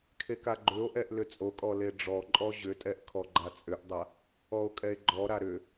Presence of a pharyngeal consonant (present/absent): absent